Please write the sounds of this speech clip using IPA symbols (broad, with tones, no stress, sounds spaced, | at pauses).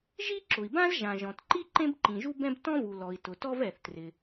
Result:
ʒ i˥ ǁ ʊ˩ i̯ b ã˥ z ʒ ã˩ ʒ ɔ̃˩ t ǃ i˥ ǃ ẽ˥ b ǃ ĩ˩ ʒ u˥ b ɛ̃˥ b t ɔ̃˥ v u˩ l ɔ˩ i̯ t ʊ˩ t ɔ˥ v ɛ˩ θ t r ɪ˩